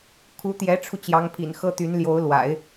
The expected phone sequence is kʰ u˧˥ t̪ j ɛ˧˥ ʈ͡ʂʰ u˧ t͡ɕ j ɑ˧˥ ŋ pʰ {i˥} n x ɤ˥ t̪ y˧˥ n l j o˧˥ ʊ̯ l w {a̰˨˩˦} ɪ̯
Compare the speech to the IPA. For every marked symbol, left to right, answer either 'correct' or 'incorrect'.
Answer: incorrect, correct

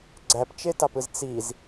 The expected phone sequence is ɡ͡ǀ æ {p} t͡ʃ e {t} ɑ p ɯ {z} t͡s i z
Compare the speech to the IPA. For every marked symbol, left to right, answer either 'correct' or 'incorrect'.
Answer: correct, correct, correct

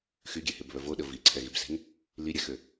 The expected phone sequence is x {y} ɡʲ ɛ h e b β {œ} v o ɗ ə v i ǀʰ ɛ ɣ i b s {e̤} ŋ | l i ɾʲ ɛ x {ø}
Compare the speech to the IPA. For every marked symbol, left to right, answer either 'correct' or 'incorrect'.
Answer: correct, correct, correct, correct

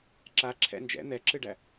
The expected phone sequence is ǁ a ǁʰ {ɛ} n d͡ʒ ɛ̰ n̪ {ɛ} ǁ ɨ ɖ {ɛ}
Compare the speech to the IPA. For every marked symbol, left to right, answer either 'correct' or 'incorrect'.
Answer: incorrect, correct, incorrect

